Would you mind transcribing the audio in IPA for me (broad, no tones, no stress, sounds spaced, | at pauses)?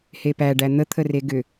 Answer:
h e p æ ɖ æ n̪ ə t̪ʰ ə r e ɡ ʏ